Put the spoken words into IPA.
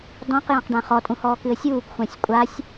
d ɔ̃ q j ã q ɖ ã χ ɔ tʼ ũ h ɔː k ɨ ə̯ sʲ uː k xʷ ã sʲ kʷʼ a sʲ

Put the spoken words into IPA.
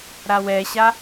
ɾ a w ɛ ɕ a

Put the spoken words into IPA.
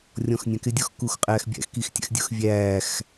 rʲ ɔ̃ x nʲ æ̃ k ɪ dʲ ɔ x k uː x qʼ æː x bʲ æ̰ x k i x tʲ æ̰ x dʲ ʊ x vʲ æː x

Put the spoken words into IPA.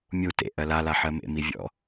mʲ u t ḛ ʔ ɜ l a l a ħ ɜ m ḛ m i vʲ ɔ̰

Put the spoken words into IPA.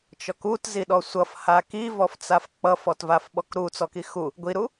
t͡ʃ ɔ k u t z i ɗ ɔ sʷ ʌ f h a k i v ɔ f t͡s a f k͡p ʌ f ɔ t v a f ɓ ɔ k ɾ u t͡s ɔ k i x u | ɡʷ i ɾ u

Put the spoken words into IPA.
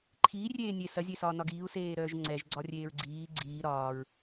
ǃʰ iː rʲ eː nʲ e s ɐ zʲ e s ɒː n ɒ ɡ iː u̯ s eː ɾ œː ʒ ŋ͡ǀ ɛ ʒ ɡ͡ǀ ɒ rʲ eː ɹ ɡ͡ǀ iː ɡ͡ǀ iː ɾ ɒː ɹ

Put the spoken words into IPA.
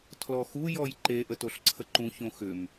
tʰ l ɔ x u j ɔ j ǃ e ʔ ə t o ɬ ǀʰ ə ǃ ũ ç õ x ʏ m

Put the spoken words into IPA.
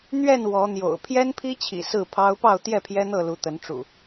n̪ ɥ ɛ˥˨ n w ɔ˨˦ n̪ j o̰˨˩ ʊ̯ pʰ j ɛ˦ n pʰ i˦ t͡ɕʰ ḭ˨˩ s ɹ̩˥˨ pʰ ɑ˦ ʊ̯ p ɑ˥˨ ʊ̯ t̪ j ɛ˥˨ pʰ j ɛ˦ n̪ ɤ˥˨ l u˨˦ t̪ ə˨˦ n ʈ͡ʂ ṵ˨˩

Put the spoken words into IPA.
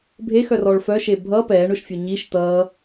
bʱ e x œ r ɔ ɭ f œ ʃ e bʱ ʌ p ɛː ɳ ʊ ʃ fʲ ʊ ɲ i ʃ t̪ ʌː

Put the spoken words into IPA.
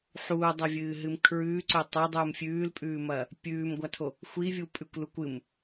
ħ uː dˤ ɐ vʲ ɨː ɦ ɨ m kʰ ɹ ʉː ǀ ɵ tˤ o dˤ uː m fʲ ʉː l pʼ ʉː m ɐː | pʲ ʉː m ɡʷ a tʰ o | xʷ i vʲ u pʼ ʉ kʷ l u kʷ ɨ m

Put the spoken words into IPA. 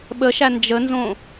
ɓ ə ʃ æ n d͡ʒ ə n z õ

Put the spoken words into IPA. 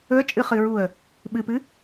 ɵ ə̯ t͡ʃʼ ɨ χ ɨ ɹ u ə̯ | ɓ ɨ p ɨ

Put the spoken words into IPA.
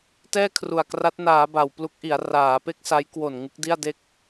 t ɛː˥˩ kʰ r u˨˩ a̯ k r a˦˥ t̚ n aː˩˦ b a˨˩ w p l u˦˥ k̚ ʔ i˩˦ a̯ r aː˩˦ p e˥˩ k̚ s a˦˥ j k w o˨˩ n ŋ ɯ˦˥ k̚ d i˥˩ a̯ d e˥˩ k̚

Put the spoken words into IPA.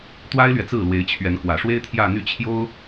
t̪ w a˥ ɪ̯ l ɥ ɛ˨ t͡s ɹ̩˥˩ l w e˧˥ ɪ̯ t͡ɕʰ ɥ ɛ˧˥ n k w ä˨˩ ʂ w e˥ ɪ̯ t̪ʰ j ä˥˧ n̪ y˥˩ t͡ɕʰ j o˥ ʊ̯

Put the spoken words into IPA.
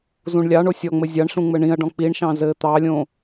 z ũ ɳ lʲ ɑ ɳ o sʲ ɔ ŋ͡m ɘ zʲ ɑ ɳ ɬ ũ ŋ͡m ɘ ɳ ĩ ɐ̯ ɖ ɔ̃ k͡p i ɳ ʃ ɑ̃ z ɘ t̪ ɑ lʲ õ

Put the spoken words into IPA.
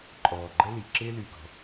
ǃʼ ɔː˨˩ ɡ͡ǃ ə˥ l i˨˩ ǁ ɪː˥ l y˨˩ ɡ ɔ̤˨˩

